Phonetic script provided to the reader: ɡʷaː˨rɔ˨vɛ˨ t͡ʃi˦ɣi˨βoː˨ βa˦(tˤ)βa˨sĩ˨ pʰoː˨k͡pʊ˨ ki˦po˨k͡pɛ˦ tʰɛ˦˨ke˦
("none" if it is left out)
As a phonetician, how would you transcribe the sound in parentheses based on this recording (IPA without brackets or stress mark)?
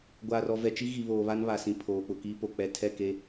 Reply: n